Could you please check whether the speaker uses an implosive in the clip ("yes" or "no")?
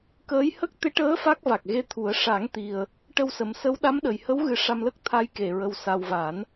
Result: yes